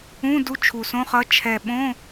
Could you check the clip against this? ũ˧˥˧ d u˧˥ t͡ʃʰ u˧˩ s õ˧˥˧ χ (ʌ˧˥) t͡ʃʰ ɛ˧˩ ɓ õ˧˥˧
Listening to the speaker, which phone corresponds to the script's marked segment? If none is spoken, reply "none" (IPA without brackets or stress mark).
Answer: ʌ˧˥